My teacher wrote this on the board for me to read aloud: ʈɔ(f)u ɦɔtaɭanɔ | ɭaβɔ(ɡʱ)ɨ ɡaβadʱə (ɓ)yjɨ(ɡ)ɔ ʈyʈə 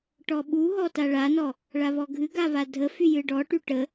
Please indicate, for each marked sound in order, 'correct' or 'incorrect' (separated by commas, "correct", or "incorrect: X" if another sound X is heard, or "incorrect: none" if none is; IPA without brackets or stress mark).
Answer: incorrect: ɓ, correct, incorrect: f, incorrect: ɖ